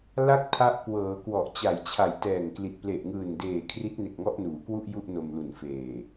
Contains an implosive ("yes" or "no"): no